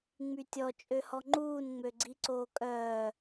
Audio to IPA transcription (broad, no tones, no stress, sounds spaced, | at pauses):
ŋ͡m y tʲ ɔ t͡ʃʼ ø h ɔ ŋ͡ǃ uː n ŋ͡m ø ɡ͡ǀ i ǀ oː kʼ œː